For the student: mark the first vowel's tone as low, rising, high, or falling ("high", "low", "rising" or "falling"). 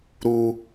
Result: high